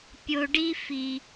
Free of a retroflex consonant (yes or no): no